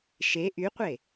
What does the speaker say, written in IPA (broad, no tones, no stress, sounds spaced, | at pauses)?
ʃ e ʔ y qʷ e